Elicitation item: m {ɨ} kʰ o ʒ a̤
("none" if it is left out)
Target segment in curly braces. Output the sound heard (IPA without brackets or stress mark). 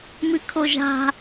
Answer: ɨ